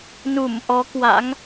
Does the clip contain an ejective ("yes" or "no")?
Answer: no